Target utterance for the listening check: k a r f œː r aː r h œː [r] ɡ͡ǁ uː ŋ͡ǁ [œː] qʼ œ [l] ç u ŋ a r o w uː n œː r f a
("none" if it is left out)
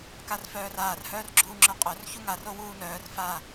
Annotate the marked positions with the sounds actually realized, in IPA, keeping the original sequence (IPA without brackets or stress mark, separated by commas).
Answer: r, œ, r